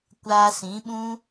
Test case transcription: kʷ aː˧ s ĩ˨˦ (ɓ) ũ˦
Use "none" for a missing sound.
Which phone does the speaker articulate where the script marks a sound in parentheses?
ɓ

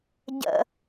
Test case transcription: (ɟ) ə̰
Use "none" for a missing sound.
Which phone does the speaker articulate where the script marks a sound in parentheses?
ɟ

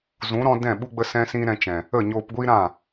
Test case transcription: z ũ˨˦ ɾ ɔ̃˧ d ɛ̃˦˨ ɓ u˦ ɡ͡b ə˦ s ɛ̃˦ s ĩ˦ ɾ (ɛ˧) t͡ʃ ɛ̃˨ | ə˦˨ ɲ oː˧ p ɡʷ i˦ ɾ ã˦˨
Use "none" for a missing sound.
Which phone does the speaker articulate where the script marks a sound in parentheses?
ɛ̃˧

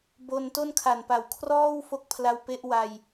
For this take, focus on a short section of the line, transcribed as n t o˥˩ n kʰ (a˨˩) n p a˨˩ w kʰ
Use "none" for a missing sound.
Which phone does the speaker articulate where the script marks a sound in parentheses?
a˨˩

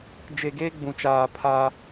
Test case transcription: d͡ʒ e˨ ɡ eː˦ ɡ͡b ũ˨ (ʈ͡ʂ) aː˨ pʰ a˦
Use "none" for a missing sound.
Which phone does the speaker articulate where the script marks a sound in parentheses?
t͡ʃ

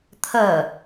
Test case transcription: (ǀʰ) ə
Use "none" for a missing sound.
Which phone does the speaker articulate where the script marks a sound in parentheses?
t̪ʰ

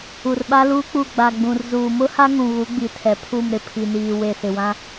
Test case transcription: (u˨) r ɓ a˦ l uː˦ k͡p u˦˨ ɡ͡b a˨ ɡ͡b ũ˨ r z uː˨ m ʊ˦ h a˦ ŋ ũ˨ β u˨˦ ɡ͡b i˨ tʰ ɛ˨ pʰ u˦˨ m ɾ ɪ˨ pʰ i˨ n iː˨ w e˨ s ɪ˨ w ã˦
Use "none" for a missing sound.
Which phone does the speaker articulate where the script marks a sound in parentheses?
u˨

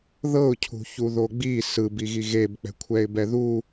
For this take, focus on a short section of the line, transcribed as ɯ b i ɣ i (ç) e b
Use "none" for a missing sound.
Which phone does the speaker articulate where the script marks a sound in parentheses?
ɣ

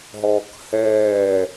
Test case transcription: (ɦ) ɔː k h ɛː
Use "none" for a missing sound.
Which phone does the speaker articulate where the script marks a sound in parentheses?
ɦ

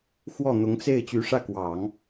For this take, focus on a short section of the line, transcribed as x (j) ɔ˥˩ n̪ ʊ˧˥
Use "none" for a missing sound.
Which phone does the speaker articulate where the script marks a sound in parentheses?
w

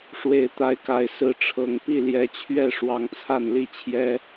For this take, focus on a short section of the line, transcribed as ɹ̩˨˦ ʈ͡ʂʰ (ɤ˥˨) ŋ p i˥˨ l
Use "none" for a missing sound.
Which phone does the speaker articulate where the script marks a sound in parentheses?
ɤ˨˩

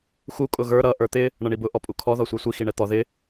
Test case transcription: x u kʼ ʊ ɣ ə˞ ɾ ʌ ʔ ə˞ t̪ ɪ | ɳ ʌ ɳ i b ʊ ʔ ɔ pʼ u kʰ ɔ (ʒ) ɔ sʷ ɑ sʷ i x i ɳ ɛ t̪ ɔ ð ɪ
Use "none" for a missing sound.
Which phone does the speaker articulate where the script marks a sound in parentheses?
ð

